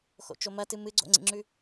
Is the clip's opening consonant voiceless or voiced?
voiceless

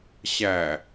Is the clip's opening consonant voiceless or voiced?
voiceless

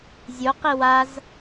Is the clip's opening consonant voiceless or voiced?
voiced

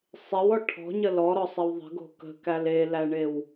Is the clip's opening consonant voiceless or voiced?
voiceless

